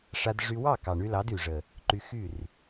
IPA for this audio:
ʂ a˧ d ʐ y˧ w ɑ˦˨ k ɑ˨ ɳ y˧ l ɑ˨˦ d y˨ ʐ ə˨ | ǃ y˧ x y˦˨ r

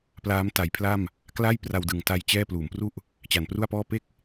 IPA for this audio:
p l aː˦˥ m t a˩˦ j pʰ l a˥˩ m | k l a˥˩ j p r a˧ w d ɯ˨˩ ŋ t a˧ j t͡ɕ ɛː˥˩ p l uː˩˦ m p r u˥˩ ʔ | t͡ɕ a˨˩ n p r u˥˩ a̯ p ɔː˥˩ p e˥˩ k̚

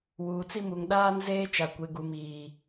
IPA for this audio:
w uː˨ t͡s i˦ m u˨ ŋ ɗ aː˦ n z eː˦ t͡ʃ a˨ kʷ e˨ ɡ u˨ m iː˨

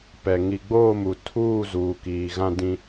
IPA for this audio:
p ɛ˨ ŋ i˨ ɡ͡b oː˦˨ m u˨ tʰ uː˦˨ z uː˨ k iː˨ ɣ ã˦ d ĩ˦

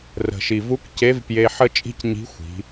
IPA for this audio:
r ə̤˩ ʃ i˩ v u˧˥ k c e˧˥ v p j e˧ ħ ə˥ t͡ʃʼ i̤˥ c ɲ i̤˧˥ xʷ i̤˩˧

